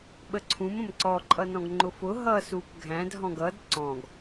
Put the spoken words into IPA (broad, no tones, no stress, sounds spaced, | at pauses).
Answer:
ɓ ə ǀʰ ũ m ə̃ m ǀ ɔ ǃʼ ʌ n ɔ̃ ɡ ŋ͡ǃ ʊ f ʊ ɦ ʌ s u p ɡʱ æ̃ d ɦ ɔ̃ ɡ ʌ d ǀ ɔ̃ ɡ